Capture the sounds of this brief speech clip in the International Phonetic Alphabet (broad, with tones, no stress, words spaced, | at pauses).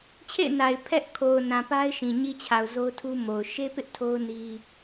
t͡ɕʰḛ˦˨ɪ̯na˨ɪ̯ pʰɛ˦ʔ kʰo˨ʊ̯nã˨ pa˦ɪ̯ʃĩ˨ ɲi˦t͡ɕʰa˨ʊ̯zo˦ʊ̯tʰu˦ mo˨ʊ̯ ʃe˦pɪ˦ʔ tʰo˦ʊ̯ni˦